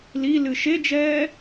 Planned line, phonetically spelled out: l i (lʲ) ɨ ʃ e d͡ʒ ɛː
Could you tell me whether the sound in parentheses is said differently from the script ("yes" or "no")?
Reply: yes